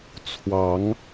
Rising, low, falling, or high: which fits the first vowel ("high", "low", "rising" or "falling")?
rising